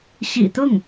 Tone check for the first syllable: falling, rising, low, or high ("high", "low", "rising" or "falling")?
low